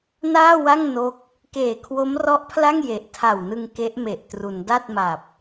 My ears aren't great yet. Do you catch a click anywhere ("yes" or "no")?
no